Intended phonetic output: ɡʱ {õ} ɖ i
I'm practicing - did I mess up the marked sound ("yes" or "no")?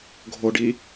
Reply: yes